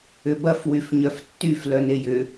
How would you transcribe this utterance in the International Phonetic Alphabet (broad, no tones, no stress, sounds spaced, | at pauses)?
ʏ b ɐ f w y f ɲ œ f tː y f l œ n e j ʏ